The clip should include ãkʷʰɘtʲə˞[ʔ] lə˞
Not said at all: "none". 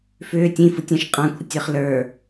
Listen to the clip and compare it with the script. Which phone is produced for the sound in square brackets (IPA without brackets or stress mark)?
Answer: χ